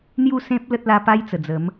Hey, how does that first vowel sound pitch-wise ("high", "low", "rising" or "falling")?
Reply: falling